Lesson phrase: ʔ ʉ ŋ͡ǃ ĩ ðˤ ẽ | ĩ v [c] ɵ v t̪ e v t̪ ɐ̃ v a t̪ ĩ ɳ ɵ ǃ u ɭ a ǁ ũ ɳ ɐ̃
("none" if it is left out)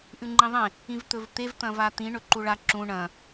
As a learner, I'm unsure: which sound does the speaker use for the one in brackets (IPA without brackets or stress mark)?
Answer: t̪